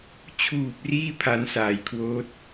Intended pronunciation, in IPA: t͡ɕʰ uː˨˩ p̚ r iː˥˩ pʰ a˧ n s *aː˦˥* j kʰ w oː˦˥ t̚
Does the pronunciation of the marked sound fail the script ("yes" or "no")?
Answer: yes